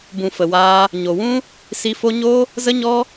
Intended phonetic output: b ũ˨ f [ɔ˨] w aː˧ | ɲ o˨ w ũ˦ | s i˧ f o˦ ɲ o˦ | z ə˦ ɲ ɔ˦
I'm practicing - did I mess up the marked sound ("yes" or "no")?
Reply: yes